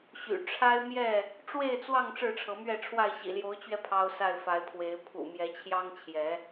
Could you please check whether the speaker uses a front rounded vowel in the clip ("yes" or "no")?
yes